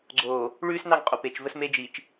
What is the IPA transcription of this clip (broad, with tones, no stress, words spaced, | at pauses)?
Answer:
ɡ͡ǀoː˨ | ɭʉː˦snɑ˦˨ŋqʼo˨ pe˨t͡ʃ və˦sme˦d͡ʒiː˨t͡ʃ